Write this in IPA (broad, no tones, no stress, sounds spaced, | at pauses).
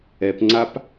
ɛ p ŋ͡ǀ a p